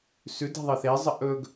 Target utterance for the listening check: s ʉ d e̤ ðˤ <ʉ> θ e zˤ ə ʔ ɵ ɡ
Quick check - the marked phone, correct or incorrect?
incorrect: ɨ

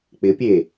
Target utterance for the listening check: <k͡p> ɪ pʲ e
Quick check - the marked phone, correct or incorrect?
correct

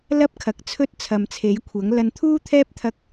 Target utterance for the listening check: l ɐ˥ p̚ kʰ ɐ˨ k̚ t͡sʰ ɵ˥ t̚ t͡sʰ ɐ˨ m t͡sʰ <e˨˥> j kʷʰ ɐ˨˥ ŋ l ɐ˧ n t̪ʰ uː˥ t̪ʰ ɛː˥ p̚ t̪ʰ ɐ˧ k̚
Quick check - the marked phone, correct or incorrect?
correct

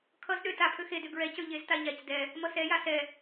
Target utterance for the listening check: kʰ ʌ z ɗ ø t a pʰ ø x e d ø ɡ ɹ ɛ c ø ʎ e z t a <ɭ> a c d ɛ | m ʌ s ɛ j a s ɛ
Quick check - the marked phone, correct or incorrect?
incorrect: ʎ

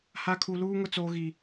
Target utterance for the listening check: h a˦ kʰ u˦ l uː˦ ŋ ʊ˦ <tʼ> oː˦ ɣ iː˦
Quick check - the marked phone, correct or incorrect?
incorrect: t͡s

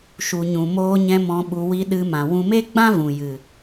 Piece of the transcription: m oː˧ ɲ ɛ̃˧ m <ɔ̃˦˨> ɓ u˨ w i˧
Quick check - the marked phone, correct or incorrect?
incorrect: ɔ̃˨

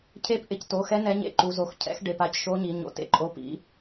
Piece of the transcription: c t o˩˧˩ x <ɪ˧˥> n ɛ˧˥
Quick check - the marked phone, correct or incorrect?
incorrect: ɛ˧˥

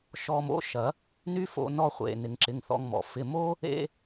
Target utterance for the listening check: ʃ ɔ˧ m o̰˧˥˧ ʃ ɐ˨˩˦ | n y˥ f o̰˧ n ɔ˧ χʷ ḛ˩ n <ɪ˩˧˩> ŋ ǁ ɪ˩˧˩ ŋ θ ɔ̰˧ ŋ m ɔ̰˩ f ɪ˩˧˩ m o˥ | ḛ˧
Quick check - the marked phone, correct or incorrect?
incorrect: ɪ˩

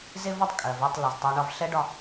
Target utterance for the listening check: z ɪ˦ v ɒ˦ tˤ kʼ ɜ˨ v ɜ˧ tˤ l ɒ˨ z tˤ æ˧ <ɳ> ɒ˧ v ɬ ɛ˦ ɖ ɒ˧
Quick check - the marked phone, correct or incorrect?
correct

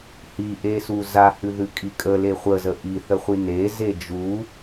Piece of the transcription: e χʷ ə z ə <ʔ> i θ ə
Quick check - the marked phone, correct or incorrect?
correct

